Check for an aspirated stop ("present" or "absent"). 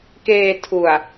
present